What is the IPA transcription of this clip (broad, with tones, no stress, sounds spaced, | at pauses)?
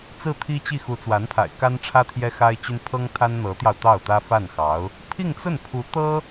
t͡s ɹ̩˥˩ t̪ʰ i˥ t͡ɕ i˥˩ x u˧˥ t͡s w a˧˥ n pʰ a̰˨˩ ɪ̯ k a˥ n ʈ͡ʂʰ ä˥ t̪ʰ j ɛ˥ x a˥ ɪ̯ t͡ɕ y˥ n pʰ ɤ˥ ŋ t̪ʰ a˥ n n̪ ɤ˧˥ t̪ j ɑ˧ ʊ̯ t̪ ɑ˥˩ ʊ̯ t̪ ä˥ f a˥˩ n x ɑ˧˥ ʊ̯ | pʰ i˥˧ ŋ t͡s ə˥˩ n pʰ u˧˥ t̪ ɤ˥